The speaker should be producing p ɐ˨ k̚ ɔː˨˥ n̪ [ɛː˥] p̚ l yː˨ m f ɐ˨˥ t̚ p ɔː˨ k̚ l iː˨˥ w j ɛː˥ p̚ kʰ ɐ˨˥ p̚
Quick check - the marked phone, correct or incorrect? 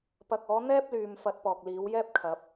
correct